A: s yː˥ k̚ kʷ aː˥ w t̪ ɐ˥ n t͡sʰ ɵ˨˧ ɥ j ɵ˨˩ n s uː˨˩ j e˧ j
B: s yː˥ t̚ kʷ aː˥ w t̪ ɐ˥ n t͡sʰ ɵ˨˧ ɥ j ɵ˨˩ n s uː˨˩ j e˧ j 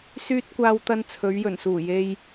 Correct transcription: B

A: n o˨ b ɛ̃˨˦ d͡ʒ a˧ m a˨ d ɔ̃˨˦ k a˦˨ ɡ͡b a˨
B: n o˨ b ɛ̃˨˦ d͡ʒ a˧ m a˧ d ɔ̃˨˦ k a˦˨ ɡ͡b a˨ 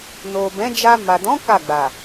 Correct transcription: A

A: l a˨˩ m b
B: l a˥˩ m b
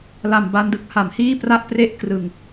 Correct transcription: A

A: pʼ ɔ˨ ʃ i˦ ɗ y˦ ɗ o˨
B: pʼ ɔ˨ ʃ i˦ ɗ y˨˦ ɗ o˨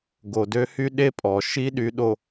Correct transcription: B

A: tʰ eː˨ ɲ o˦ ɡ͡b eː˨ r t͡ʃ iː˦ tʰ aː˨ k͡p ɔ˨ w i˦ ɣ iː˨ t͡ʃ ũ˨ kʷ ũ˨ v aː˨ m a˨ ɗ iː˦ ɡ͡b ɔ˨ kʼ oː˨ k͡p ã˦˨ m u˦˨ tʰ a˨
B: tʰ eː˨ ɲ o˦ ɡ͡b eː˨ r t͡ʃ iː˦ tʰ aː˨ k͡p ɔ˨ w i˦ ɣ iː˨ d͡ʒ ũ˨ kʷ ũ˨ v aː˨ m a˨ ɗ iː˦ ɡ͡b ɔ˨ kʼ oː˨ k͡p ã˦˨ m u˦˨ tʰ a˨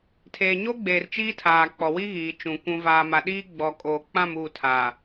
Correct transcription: A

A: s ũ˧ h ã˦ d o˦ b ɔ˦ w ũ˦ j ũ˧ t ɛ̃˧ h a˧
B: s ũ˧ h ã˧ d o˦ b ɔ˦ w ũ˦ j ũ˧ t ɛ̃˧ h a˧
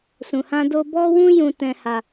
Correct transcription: A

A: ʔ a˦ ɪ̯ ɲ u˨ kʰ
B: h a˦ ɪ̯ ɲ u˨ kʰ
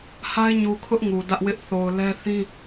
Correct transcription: B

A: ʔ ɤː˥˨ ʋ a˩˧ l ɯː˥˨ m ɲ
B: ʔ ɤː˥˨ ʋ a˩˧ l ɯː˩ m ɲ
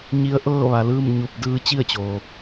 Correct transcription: A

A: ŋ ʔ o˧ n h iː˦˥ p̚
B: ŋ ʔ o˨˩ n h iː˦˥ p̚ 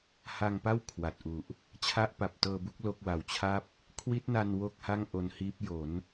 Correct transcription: A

